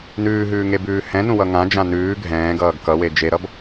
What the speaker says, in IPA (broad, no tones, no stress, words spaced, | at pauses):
nʉːɦʉːŋebʉː hɛ̃nũwʌ ŋãd͡ʒã nʉː ɡʱɛ̃ːɡʌːɡ kʌwe d͡ʒeɾʌb